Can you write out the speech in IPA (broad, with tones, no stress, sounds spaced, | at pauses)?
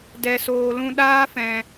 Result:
d ɛ˨ s oː˨ l ũ˧ ɗ aː˦ f ɛ̃˨